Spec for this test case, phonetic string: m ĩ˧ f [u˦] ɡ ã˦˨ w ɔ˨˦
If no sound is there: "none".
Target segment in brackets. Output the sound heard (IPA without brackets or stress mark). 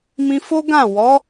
o˦